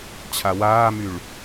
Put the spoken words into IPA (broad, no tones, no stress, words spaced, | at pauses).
t͡ɕʰawaːmyɭ